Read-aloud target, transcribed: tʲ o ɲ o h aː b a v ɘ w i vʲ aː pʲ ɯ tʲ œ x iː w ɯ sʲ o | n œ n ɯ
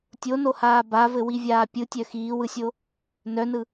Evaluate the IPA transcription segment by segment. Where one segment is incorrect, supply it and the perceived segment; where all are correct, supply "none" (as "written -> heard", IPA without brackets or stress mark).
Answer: ɲ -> n